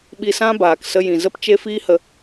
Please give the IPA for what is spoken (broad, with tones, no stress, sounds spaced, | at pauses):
ɓ i˧ s ã˦ b aː˨ k s ə˧ j ĩ˨ z ə˦ p t͡ʃ e˦ f iː˦ h ə˧